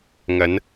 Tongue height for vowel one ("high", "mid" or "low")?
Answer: low